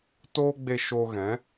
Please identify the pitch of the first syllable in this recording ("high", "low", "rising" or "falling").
high